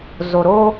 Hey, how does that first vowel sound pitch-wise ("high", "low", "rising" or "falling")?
low